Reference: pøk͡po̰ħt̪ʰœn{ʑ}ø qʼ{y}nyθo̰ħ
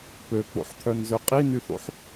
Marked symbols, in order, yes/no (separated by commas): no, no